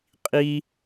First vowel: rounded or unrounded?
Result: unrounded